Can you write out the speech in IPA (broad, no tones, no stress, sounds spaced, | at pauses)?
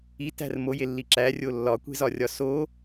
i t æ̤ r m o j e lː i ǁ æ rʲ o lː ɒ kʷ e̤ z ɒ rʲ ɒ s o